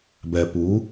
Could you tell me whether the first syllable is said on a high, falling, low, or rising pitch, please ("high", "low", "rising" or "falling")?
low